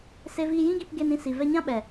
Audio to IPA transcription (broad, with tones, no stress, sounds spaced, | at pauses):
s e˧ v iː˧ j ĩ˦ ɡ i˧ p ɡ e˧ n ĩ˧ s i˨ v ɛ˧ ɲ ã˦ ɓ ɛ˨